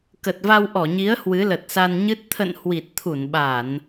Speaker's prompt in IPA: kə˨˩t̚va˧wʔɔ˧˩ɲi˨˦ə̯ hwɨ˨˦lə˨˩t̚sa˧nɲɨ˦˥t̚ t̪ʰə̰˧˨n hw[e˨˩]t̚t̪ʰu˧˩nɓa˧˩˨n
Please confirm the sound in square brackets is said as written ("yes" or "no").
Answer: no